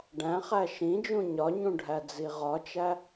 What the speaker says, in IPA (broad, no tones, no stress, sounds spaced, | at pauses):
ɖ æ̃ χ æ ʃ ĩ d͡ʒ ũ ɲ ɒ ɲ ũ ɖʱ æ d͡z i ʁ ɒ t͡ʃ æ